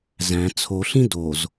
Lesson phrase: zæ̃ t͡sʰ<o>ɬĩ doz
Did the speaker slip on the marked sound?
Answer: no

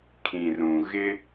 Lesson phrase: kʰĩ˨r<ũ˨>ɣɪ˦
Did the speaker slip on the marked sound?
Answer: no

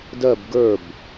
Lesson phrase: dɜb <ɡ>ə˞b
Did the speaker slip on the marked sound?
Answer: no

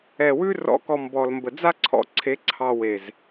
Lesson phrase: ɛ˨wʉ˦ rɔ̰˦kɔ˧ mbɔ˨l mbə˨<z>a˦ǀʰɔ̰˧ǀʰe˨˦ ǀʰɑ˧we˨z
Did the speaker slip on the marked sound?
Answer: yes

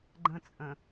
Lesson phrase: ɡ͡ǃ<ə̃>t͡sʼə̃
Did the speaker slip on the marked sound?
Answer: no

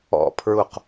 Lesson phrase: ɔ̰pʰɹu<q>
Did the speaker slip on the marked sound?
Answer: no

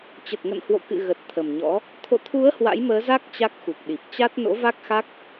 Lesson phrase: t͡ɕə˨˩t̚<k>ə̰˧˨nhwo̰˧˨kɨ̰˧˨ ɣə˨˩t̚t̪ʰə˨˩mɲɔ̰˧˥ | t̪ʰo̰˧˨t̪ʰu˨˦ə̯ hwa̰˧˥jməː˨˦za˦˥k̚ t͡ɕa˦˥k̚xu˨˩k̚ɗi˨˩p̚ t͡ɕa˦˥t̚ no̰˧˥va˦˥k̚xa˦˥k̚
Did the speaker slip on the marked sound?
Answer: yes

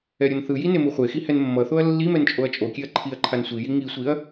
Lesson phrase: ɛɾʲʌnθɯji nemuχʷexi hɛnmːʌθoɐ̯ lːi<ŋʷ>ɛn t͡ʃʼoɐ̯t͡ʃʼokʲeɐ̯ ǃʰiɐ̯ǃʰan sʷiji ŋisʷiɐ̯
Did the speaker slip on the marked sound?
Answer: yes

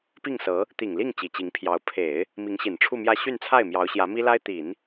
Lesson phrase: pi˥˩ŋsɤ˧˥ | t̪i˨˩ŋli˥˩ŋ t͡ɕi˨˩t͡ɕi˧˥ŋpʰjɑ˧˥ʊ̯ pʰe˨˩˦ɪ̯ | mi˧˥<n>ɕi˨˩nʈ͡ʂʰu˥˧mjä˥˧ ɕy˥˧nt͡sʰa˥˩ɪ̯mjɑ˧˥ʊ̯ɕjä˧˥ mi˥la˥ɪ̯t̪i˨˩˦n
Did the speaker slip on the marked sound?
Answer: yes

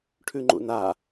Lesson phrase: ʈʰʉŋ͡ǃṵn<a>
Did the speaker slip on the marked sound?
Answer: no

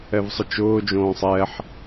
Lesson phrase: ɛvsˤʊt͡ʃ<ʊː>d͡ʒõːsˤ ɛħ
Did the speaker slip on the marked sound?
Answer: no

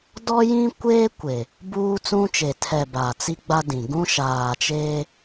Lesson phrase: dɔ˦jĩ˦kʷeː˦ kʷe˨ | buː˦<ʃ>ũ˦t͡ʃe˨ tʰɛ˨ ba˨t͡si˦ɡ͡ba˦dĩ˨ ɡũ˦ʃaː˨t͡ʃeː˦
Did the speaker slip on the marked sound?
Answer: yes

